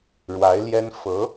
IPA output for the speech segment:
ɻ w a˧˥ ɪ̯ l j ɛ˥ n f ɤ˧˥

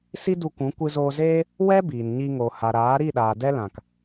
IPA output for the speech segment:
s i˦ d u˧ kʷ ũ˨˦ kʷ ɨ˧ z oː˧ z eː˦ | w ɛ˦ b iː˨ n ɲ i˧ ŋ o˨ h a˨ ɾ aː˨˦ ɾ i˦˨ ɗ aː˨ d ɛ˦ l ã˨ k

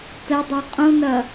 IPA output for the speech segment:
t ə dˤ e qʼ ũ n ɐ

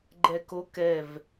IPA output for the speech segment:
ɡ͡ǃ ɛ k o k ɛ v

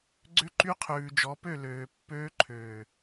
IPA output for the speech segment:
ɡ͡ǀ ʏ˧ ǃ y˧ qʰ ʉː˨ d͡ʒ ɔ˨˦ p ø˦˨ l øː˨ pː øː˧ ǃʰ øː˨

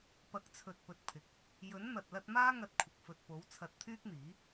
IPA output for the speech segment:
p ɐ˨˥ k̚ t͡sʰ ɵ˨ t̚ p ɵ˨ t̚ pʰ ɪ˨ k̚ | j ɵ˨˥ n n̪ ɐ˨ t̚ l ɐ˧ t̚ m aː˥ ŋ ɐ˧ t̚ kʷʰ ɪ˨ k̚ f ɵ˨ t̚ p o˨˥ w t͡sʰ ɐ˧ t̚ t̪ʰ yː˥ k̚ n̪ iː˨˥

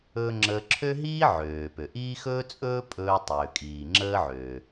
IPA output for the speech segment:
ɵ˥ ŋ͡ǁ əː˧ ǁʰ ø˥ ɦ iː˥ ʕ øː˩ p ø˩ ʔ iː˥ x ɵː˥ t͡sʼ ɵː˥ pʼ ɵː˧ tˤ øː˩ kʼ iː˩ ŋ͡ǁ əː˥ ʕ øː˩

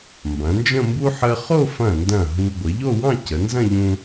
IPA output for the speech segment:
m b ɐ̃˩˧ n d͡ʒ ə̃˥˧ m b u˥ ħ ə˧ χ o˥˧ f ɐ̃˧˩ n d ɐ̃˧˩ ɦ u˧ ɡʷ ə˩˧ ʎ o˥˧ w ɑ̃˥˧ c ə˩˧ n z ɐ̃˥˧ ʎ ũ˧

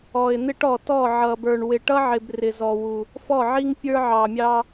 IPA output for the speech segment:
ɔ˨ ɪ̯ n̪ ɪ˦ ʈ ɔ˨ t ɔ˦˨ ʕ ʌ˨ b ə˞˨ ɳ w ɪ˨ ʈ ʌ˦ ʕ ɪ˨ b r ɪ˨ z ɔ˨ w u˨ | f ɔ˦˨ ʕ i˦ ŋ pʲ ə˞˦ ʕ ɑ˨ mʲ ɑ˦

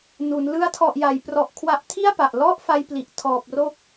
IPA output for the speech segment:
n u˩˦ n l ɯ˦˥ a̯ tʰ ɔ˨˩ ʔ j a˩˦ j p r ɔ˨˩ ʔ kʰ w a˦˥ ʔ tʰ i˥˩ a̯ p a˨˩ ʔ l ɔ˥˩ ʔ f a˧ j p l i˨˩ ʔ tʰ ɔː˨˩ p̚ r o˦˥ k̚

